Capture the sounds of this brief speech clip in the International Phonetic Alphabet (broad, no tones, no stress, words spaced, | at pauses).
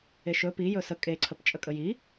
eʃɵ pijɵ sə kʼeǀʰəpt͡ʃʼə kʼəji